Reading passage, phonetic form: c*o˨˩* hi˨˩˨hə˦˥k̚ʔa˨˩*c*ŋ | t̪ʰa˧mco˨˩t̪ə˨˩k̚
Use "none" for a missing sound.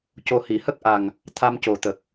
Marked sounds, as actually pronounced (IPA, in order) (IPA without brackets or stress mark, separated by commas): o˨˩, none